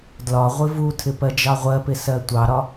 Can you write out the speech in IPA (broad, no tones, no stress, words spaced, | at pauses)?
dlɒ ʁʷɪvutʰɪ pɜd͡ʒɑʁʷɜpɪ sɜtʷɑɾɒ